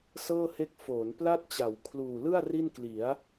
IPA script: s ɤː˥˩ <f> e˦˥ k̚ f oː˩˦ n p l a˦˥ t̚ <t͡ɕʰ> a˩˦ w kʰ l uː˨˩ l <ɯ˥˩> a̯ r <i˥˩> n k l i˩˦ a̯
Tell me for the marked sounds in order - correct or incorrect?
incorrect, incorrect, correct, correct

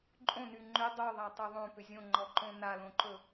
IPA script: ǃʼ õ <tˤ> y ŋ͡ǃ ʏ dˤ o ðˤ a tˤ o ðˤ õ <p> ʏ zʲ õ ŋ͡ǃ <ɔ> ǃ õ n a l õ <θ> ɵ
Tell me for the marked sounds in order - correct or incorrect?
incorrect, correct, correct, incorrect

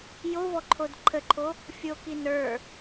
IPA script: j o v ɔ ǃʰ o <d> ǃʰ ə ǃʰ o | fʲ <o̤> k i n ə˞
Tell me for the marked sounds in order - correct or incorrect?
correct, incorrect

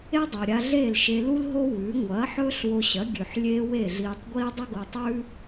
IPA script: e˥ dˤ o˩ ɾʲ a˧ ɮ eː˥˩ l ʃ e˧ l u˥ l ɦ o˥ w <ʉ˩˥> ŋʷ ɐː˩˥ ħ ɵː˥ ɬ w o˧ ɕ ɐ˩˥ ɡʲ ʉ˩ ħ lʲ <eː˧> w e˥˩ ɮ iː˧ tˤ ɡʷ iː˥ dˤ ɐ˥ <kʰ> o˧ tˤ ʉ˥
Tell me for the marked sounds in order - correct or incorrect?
correct, correct, incorrect

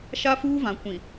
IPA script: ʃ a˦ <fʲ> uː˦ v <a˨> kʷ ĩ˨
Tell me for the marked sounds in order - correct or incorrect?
incorrect, incorrect

